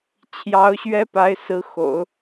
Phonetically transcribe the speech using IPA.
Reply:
t͡ɕʰ j ɑ˧˥ ʊ̯ ɕ ɥ ɛ˥ p a˧˥ ɪ̯ s ɹ̩˧˥ x o̰˨˩˦ ʊ̯

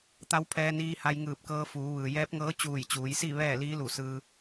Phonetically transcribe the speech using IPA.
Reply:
t̪ a˧˥ w pʰ ɛː˧ n iː˧ h a˧ j ŋ ɯː˧˩ p̚ k ɤː˧ f uː˩˧ ʋ ɯː˩ j ɛː˧˥ p̚ ŋ ɤː˧˥ t͡ɕ uː˧˩ j t͡ɕ uː˩˧ j s i˥˨ ʋ ɛː˥˨ l iː˧˥ l u˧˩ s ɯː˧

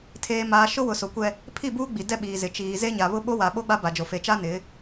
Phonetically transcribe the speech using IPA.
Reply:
tʰ eː˨ m aː˨ ʃ ʊ˦ w ʊ˨ s o˨ kʷ ɛ˦ | pʰ i˦˨ b uː˦ ɡ͡b i˨ d ɛ˦ ɓ iː˨ z ɪ˨ t͡ʃ iː˨ z e˦ ɲ a˨ β ʊ˦ ɓ o˦ w a˨ ɓ o˦ ɡ͡b a˦ b a˨ d͡ʒ o˨ f e˨ t͡ʃ a˦ n ɪ˨˦

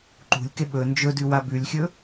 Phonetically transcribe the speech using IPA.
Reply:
ǃ ṳ lʲ k e ɓ ɵ n d͡ʒ ɵ d ʉ w a b ʉ lʲ xʲ ɵ

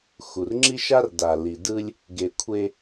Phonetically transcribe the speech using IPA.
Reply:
x u˨ r ŋ͡ǁ i˦ ʃ a˦ r d a˨ l i˨ d ɯ˦ lʲ | ɡ e˨ kʷʰ e˦

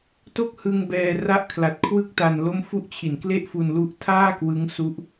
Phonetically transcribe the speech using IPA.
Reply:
t o˥˩ k̚ h ɯ˧ ŋ b ɛː˧ r a˦˥ ʔ kʰ l a˨˩ t̚ kʰ w ɯ˥˩ k̚ t a˧ n l o˦˥ m f u˦˥ ʔ t͡ɕʰ i˨˩ n k l e˥˩ ʔ f u˧ n l u˦˥ ʔ tʰ aː˥˩ k w ɯ˦˥ ŋ s u˦˥ ʔ

